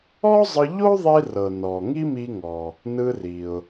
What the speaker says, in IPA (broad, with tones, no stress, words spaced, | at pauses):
ɔ˥zˤɯ˧ʎo˥ ðˤi˧rɤ˩ nɔ˩ ŋi˥mi˧ŋɔ˩ | nɯ˧ri˩ʊ̯